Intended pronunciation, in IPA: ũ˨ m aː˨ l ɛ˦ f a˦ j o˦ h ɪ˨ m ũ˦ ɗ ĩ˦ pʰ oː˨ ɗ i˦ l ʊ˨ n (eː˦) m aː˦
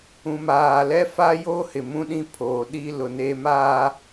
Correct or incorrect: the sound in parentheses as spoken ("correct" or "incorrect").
correct